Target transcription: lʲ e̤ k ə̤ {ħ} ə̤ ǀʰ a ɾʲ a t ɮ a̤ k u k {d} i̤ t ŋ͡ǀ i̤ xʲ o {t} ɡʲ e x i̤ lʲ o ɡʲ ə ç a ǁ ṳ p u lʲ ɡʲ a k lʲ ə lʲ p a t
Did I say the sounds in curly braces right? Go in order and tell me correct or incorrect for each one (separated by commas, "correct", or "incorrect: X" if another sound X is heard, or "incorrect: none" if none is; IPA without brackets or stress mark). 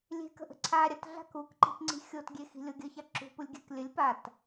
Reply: incorrect: ʔ, incorrect: ǃ, correct